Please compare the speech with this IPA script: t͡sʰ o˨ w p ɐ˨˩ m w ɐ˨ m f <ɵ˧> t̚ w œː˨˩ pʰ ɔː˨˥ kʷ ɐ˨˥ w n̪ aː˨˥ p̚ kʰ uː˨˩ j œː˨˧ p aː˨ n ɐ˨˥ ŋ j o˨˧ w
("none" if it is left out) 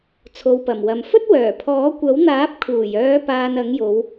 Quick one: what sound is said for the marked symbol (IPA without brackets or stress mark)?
ɵ˥